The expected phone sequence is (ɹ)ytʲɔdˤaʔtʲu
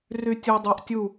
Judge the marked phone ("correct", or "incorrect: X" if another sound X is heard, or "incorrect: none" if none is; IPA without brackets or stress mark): incorrect: r